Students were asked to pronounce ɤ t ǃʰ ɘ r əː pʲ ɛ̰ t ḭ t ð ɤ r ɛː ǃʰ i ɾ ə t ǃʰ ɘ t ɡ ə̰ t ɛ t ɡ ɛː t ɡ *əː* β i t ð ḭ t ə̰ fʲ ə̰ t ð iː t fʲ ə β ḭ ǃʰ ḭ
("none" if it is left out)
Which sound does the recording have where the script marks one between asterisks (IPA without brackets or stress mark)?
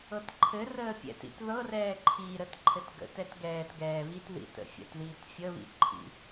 ɛː